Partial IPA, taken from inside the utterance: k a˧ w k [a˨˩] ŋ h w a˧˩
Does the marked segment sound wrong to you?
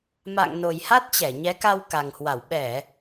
no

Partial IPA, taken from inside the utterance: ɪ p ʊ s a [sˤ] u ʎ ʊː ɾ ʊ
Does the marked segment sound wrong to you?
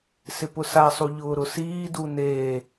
no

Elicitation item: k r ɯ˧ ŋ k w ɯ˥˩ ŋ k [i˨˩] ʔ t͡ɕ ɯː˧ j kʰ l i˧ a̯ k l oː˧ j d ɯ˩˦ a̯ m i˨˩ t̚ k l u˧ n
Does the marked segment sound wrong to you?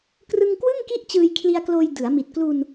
yes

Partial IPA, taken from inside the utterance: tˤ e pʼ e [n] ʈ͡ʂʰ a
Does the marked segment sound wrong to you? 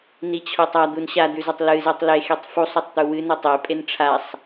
no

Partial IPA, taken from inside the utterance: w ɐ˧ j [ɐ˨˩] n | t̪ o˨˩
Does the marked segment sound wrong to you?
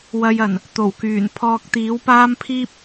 no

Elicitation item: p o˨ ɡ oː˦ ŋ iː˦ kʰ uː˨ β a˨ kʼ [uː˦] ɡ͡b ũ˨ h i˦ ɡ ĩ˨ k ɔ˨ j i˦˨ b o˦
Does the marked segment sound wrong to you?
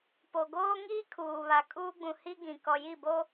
no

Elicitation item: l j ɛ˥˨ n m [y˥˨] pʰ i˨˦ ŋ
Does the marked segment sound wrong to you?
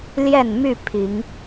no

